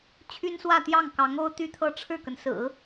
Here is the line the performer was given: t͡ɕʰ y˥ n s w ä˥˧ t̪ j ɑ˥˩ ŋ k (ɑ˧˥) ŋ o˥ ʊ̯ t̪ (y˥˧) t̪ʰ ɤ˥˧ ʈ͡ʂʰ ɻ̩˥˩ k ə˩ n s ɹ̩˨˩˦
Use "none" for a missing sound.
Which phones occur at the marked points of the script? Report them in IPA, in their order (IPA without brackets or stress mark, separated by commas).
ɑ˧˥, y˥˧